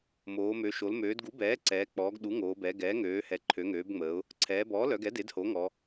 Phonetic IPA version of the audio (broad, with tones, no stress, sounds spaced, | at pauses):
m oː˩˧ m ø˩˧ ʃ o˩˧ l m øː˩˧ d ɡ u˩˥ b ɛː˩˥ ǀ ɛː˩˧ k͡p ɔː˩˧ ɡ ɗ u˩˥ ŋ oː˩˧ b ɛ˩˧ ɡ ɛː˩˥ ŋ øː˩˧ h ɛ˩˧ ǃʰ ø˩˧ ŋ øː˩˧ b ŋ͡m əː˩˧ ʊ̯ | ǀʰ ɛː˩˧ b ɔː˩˥ l œ˩˧ ɡ ɛ˩˥ d e˩˥ d h o˩˥ ŋ ɔ˩˧